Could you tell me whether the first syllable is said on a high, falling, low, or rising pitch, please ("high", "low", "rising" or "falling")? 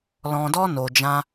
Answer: low